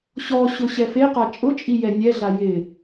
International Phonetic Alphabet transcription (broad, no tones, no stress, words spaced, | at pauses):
ɕɔɕʊ ɕɛfeqa t͡ʃʼʊt͡ʃʼi jɛnʲɛɮa jɪ